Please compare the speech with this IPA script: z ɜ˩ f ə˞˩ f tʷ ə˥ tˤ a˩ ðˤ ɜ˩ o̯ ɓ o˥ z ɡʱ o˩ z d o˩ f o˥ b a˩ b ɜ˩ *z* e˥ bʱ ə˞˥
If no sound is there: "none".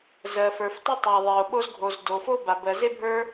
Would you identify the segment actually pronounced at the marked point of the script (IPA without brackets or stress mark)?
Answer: z